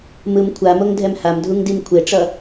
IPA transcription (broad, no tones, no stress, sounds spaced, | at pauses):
m ɯ m kʷʰ a m o ŋ dʱ ɛ m h a m dʱ u ŋ d i m kʷʰ e ʈ͡ʂ ʌ